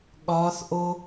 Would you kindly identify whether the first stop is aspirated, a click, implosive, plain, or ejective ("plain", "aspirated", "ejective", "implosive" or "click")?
implosive